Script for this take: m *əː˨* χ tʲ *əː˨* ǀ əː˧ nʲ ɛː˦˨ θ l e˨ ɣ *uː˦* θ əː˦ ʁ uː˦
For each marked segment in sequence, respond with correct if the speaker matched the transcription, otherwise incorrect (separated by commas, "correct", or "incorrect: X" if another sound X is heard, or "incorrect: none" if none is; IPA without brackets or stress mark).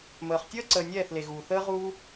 correct, incorrect: əː˦, incorrect: uː˨